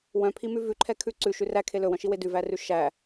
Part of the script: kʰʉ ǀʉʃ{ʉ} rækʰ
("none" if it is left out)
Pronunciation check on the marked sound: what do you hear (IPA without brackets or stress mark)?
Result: ʉ